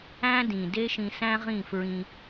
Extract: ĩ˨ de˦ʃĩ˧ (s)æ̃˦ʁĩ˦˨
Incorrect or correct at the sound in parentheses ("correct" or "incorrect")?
correct